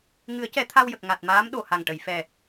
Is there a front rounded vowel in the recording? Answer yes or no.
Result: no